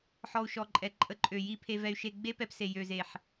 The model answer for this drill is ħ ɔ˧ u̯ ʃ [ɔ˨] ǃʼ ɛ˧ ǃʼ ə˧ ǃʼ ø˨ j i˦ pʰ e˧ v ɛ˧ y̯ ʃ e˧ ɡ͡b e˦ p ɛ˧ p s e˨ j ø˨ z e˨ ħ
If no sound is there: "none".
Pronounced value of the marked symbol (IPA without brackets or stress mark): ɔ˧